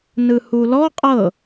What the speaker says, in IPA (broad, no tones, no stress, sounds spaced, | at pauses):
n ɯ h u l ɔ qʼ ɤ